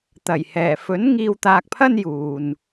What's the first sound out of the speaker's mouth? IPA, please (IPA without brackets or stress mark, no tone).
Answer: t̪